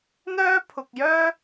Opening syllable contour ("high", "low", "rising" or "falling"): high